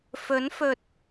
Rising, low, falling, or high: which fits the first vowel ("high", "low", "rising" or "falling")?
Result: rising